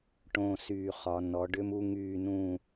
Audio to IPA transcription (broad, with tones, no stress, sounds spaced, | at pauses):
ʈ õ˨˩ s yː˨˩ χ ɒ˩˧ n ɔ˩˧ ɖ ʏ˦ m u˦ ŋ yː˦˨ n ũː˦˨